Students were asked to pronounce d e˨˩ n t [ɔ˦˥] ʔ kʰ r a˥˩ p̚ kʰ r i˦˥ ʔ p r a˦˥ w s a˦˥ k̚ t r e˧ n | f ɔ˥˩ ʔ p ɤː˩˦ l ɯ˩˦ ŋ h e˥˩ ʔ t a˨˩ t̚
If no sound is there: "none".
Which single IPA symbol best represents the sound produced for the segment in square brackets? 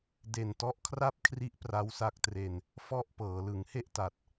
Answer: ɔ˦˥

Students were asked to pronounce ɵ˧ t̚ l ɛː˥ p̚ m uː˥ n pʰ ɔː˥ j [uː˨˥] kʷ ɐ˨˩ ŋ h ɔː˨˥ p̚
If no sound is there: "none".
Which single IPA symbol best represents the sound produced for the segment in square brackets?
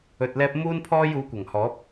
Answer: uː˨˥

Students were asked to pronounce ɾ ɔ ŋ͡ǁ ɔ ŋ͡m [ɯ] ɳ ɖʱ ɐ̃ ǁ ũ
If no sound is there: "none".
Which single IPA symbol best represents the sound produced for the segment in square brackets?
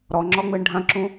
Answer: ɯ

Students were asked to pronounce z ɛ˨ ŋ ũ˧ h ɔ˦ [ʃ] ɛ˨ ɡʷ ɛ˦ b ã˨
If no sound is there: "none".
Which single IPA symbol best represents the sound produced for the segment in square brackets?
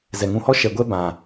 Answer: ʃ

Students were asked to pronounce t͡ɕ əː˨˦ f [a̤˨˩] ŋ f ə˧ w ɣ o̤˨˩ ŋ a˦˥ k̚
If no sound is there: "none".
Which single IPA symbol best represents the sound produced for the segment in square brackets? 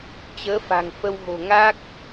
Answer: a̤˨˩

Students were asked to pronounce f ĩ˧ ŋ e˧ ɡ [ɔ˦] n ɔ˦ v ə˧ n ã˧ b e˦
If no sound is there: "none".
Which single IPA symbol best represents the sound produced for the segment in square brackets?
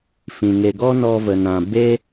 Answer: ɔ˦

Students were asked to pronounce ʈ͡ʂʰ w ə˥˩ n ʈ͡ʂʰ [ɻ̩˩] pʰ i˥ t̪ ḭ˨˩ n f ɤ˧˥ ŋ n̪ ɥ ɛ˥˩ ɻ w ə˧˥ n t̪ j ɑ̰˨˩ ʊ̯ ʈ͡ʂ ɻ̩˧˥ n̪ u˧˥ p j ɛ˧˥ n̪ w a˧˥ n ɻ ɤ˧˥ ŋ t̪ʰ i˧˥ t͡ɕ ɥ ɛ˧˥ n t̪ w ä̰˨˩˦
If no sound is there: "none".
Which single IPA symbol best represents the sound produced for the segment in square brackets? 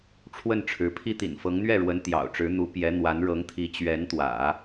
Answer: ɻ̩˧˥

